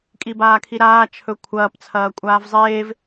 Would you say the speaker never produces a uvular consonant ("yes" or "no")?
yes